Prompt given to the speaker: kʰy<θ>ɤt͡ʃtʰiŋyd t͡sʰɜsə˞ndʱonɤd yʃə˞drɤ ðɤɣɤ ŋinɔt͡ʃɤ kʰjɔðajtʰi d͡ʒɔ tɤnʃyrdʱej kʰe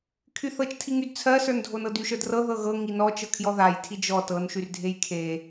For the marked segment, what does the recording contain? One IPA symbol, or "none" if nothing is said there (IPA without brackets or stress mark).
θ